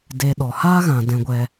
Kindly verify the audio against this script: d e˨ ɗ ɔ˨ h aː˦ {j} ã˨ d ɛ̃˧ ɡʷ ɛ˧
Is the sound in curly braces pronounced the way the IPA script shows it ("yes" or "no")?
no